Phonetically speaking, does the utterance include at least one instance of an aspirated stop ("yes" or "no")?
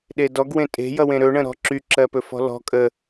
no